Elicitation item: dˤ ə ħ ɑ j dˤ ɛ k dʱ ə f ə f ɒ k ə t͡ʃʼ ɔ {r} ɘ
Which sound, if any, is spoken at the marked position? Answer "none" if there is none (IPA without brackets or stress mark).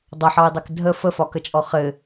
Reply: χ